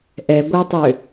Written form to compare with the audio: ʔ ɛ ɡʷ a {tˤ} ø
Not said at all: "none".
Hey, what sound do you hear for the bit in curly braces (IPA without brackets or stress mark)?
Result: tˤ